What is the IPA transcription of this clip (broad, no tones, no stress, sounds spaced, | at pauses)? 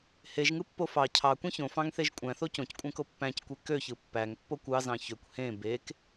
h e ʒ ŋ ɯ pː o f ɑ cʰ ɑ kʷ ẽ ç õ f ɑ̃ ŋ θ e ʒ kʷʼ æ̃ θ o c õ c kʷʼ æ̃ k o pː æ̃ c kʷ e k ø ç ɯ pː æ ŋ pː o kʷ ɑ z ɑ̃ ç ø kʷ h ẽ b e k